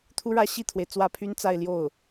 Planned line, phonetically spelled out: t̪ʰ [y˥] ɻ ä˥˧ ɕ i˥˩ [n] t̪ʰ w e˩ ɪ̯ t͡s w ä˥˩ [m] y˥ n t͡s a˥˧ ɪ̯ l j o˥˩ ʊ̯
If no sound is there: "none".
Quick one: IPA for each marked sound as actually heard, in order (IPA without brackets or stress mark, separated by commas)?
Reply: u˥, none, pʰ